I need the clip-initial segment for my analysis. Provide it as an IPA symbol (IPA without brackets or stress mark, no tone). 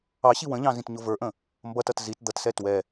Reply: ɑ